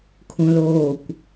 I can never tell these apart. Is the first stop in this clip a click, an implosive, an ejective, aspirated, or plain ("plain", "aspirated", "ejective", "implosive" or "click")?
aspirated